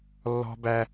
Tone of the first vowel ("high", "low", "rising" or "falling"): high